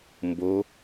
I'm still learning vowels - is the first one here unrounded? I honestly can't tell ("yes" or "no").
no